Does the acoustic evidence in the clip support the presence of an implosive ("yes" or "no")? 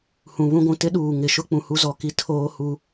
yes